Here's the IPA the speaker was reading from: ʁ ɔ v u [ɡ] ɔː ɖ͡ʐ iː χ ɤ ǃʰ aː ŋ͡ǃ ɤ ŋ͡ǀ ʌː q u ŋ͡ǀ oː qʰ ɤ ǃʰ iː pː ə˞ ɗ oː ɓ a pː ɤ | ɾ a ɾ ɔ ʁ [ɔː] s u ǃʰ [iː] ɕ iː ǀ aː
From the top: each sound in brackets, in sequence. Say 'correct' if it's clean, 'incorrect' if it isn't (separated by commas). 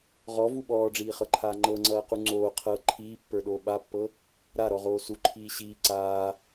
incorrect, incorrect, correct